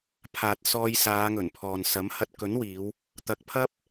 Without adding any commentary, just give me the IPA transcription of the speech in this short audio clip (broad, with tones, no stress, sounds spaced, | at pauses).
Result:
pʰ aː˨ t̚ s ɔː˧ j s aː˨˧ ŋ ɵ˨˩ n pʰ ɔː˨ n s ɐ˨˥ m h ɐ˧ t̚ k ɵ˨˥ n w iː˨˧ w | t̪ ɐ˨˥ k̚ pʰ ɐ˥ p̚